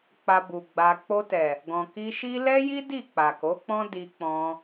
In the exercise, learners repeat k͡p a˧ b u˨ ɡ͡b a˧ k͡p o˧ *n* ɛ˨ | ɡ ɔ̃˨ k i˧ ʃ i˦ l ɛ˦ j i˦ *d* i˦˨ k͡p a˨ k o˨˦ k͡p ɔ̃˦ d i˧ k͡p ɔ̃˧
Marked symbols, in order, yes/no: no, yes

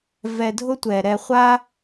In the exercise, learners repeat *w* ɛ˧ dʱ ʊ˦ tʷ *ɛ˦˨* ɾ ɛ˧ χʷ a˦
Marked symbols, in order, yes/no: no, no

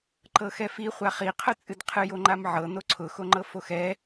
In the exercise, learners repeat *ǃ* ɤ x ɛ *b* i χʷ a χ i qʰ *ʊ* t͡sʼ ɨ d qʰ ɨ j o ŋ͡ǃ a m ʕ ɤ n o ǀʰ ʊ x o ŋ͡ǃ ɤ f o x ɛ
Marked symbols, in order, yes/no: yes, no, yes

